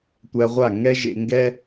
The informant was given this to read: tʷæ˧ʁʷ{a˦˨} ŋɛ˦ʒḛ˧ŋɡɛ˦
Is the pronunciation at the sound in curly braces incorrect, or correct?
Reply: correct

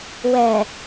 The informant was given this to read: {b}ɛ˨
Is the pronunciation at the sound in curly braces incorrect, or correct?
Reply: incorrect: w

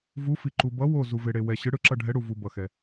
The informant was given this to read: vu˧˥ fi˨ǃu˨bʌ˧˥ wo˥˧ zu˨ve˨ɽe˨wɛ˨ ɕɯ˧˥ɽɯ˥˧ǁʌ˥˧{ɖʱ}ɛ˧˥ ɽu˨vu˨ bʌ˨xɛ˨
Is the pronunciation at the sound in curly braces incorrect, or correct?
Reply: correct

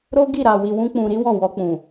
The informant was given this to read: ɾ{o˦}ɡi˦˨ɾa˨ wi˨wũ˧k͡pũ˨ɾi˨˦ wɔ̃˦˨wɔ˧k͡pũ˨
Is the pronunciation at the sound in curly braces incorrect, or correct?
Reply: correct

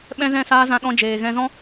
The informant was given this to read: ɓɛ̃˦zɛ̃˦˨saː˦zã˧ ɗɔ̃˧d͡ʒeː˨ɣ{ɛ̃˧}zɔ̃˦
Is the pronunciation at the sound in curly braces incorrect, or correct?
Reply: correct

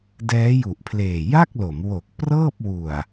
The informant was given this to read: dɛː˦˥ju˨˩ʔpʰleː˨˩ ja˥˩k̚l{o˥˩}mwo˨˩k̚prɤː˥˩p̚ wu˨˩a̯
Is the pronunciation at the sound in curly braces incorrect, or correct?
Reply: incorrect: o˩˦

